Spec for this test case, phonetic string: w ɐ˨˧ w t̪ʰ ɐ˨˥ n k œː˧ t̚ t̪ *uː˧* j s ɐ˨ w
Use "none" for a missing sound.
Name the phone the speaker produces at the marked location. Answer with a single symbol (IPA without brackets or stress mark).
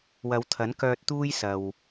uː˧